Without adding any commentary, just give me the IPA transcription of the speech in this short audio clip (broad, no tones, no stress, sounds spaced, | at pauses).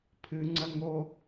pʰ ɨ ŋ͡ǀ ɐ ŋ o